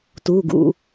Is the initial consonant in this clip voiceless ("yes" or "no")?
yes